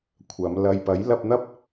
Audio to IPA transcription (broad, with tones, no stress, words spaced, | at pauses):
kʷʰɐ˨˧m lɐ˨jpɐ˨˥j lɐ˧p̚n̪ɐ˥p̚